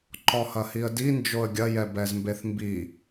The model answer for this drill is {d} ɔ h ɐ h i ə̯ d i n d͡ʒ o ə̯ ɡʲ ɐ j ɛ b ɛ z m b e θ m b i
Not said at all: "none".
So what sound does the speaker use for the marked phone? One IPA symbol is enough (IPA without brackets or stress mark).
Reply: ǃ